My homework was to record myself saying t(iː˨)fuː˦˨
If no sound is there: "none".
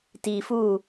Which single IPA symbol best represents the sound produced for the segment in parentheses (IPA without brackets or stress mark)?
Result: iː˨